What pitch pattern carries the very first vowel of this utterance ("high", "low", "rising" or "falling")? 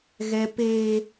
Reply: high